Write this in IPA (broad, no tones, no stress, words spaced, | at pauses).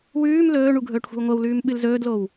wʉːm lɵːɳu ɡʱɵːʈxʷe̤wŋʷɐwlʉːm ɓɨlzɵːdlow